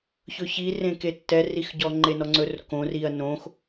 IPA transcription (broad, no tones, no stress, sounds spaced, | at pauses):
ç ɵ ç i r ẽ k e tː ɛ r i x ɟ ɔ ŋ͡ǃ e n ɔ ŋ͡ǀ ɵ r k õ r i ɐ̯ n õ x